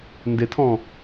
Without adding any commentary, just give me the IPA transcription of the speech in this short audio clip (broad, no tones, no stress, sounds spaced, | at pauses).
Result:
n d ɪ tʰ ɔ̃